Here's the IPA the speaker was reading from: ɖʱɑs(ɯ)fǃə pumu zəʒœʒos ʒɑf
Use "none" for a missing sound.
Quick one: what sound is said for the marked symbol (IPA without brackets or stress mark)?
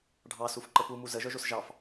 u